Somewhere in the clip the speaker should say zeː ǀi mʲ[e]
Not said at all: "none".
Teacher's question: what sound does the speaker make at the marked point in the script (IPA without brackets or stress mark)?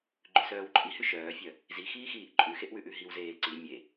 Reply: e